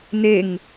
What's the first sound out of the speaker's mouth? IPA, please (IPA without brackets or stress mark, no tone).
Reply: n